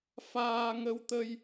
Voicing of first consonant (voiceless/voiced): voiceless